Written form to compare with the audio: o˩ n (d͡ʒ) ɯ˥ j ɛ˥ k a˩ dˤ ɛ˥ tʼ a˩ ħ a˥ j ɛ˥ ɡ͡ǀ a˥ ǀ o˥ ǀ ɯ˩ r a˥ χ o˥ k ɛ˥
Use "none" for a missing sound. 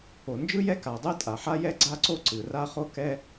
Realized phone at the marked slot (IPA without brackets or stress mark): d͡ʒ